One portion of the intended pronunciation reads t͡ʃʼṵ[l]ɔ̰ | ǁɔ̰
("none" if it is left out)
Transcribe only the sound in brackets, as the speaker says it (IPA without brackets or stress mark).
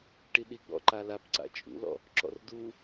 l